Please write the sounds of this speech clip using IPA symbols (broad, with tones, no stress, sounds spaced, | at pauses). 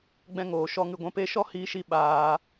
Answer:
ɡ͡b ɛ̃˧ ŋ oː˨ ʃ ɔ˧ ŋ ɨ˨ ɡʷ ɛ̃˧ p e˦ ʃ ɔ˦ h iː˦ ʃ i˦ ɓ aː˧